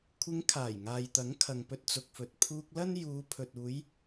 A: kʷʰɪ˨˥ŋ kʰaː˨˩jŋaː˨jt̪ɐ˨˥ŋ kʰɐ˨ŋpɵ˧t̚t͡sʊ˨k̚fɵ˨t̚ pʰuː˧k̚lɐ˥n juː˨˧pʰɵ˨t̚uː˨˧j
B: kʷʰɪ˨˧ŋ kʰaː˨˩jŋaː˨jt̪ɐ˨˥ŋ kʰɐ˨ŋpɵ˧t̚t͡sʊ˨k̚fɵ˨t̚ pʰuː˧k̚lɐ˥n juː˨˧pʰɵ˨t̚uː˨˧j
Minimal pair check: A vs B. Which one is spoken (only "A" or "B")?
B